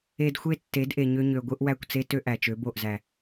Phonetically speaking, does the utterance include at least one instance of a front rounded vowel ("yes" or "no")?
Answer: yes